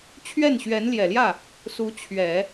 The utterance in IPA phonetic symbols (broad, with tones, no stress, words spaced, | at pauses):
t͡ɕʰɥɛ˥˩nɕɥɛ˧˥nljɛ˨˩ljä˥˩ | su˧˥t͡ɕʰɥɛ˨˩˦